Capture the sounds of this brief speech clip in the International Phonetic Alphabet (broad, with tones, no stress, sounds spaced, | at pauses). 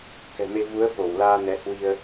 k ɛ̤˨˩ m e˧ v u˨˦ ə̯ f o˧˩ w l aː˧ n ɛ˨˦ h w i˧ ə̯